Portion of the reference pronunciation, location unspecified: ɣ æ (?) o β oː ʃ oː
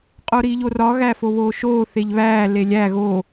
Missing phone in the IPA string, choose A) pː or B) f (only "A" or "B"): B